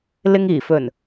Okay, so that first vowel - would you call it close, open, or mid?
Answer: close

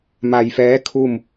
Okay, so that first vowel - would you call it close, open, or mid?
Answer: open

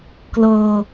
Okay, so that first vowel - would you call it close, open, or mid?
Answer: mid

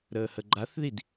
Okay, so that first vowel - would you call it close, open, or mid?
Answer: mid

